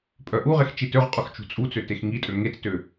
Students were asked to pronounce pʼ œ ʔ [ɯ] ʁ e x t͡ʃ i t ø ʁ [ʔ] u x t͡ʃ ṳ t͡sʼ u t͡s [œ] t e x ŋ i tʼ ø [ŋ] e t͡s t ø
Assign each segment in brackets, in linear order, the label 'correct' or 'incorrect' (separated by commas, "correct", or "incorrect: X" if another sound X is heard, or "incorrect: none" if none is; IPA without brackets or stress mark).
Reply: incorrect: u, incorrect: qʼ, incorrect: ø, correct